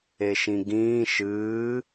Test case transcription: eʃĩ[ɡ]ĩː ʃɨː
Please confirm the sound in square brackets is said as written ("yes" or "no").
yes